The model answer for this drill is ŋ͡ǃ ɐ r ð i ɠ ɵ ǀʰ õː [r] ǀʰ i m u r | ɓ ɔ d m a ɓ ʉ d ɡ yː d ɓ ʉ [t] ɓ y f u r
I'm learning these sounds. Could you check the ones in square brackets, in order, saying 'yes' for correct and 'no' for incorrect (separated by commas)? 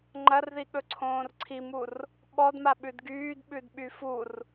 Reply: yes, no